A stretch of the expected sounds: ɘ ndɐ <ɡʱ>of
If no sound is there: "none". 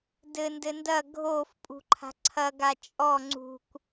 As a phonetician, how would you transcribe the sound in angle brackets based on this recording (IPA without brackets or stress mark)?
ɡʱ